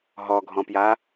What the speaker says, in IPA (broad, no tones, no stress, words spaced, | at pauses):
ɦɔɡʱɔ̃pja